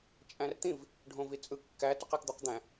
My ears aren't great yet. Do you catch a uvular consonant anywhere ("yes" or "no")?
yes